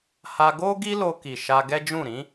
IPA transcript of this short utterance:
ha˧ɡo˦ ɡi˦lo˧ki˨ ʃa˧ɡɛ˦d͡ʒũ˦˨ ɾĩ˨˦

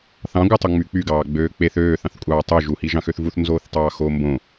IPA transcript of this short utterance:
θɑ̃ɡʷɯtˤo ŋ͡myk͡pyɡɑːɡ͡bøː k͡peθ øːθɑ̃θkʷʼɑː tˤø ʒuhi ʒɑ̃xøθvuθnzoːθ tˤɑːxoːmbõ

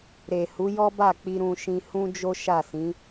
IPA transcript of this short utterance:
ɾe˨hu˨˦jɔ˦ba˦˨ k͡pi˧ɾũ˧ʃĩ˧ hũ˦d͡ʒo˦ ʃa˦˨ sĩ˨˦

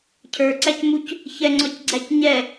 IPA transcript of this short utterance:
cʰə˞ǀæcmuc | çɛŋ͡ǀɔcɡ͡ǀæc ɲɛ

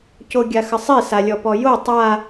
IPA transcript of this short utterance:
coɡʲaxəsˤi salʲɔpɔjo tˤa

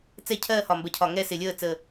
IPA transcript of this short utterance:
t͡sɛ˥˧cʰɜː˥˧ hɒ˨˩mbɜ˨˩cʰɒ˨˩ ŋɛ˥˧sɪ˨˩lʲəː˥˧ t͡sə˨˩

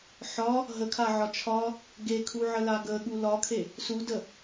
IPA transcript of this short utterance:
ħɒ | ɦəkʰaʕɒ t͡ʃʰɒ | ɡekʰuʕəla ɡəɠu lɒkʰe | sudə

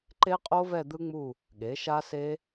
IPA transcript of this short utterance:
ǃe˦˥qʼo˦˥vɛ˦˨ d̪ɯ˦˥ŋ͡mu˦˨ | ɠe˩˥ʃa˦˥se˦˥

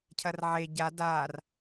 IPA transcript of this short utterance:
cʰɐrʕe ɟad ar

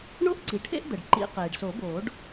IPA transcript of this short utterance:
ɳo˥ʔǀi˩ʈʰḛ˥ʔ d̪ə˩ɖ ǃḭ˨˩˦ qeː˩ɖso˨˩˦boː˨˩˦ɖ

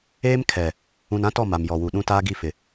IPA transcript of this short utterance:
eː˦mkʰɛ˨ | ũ˨nã˦tɔ˦˨ ma˨m jɔ˨wu˨ɗũ˦ taː˦ɡi˦˨fɪ˨

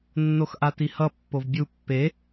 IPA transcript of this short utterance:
nːoxʔatihʌ pːovbʲu pːe

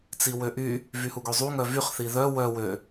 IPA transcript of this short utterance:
t͡siwøʔy | vyhuɡøzˤu ŋœvyχθi ðœ wœ wø

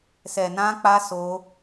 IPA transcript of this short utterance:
sɛ˨nã˧k͡pa˧ so˧

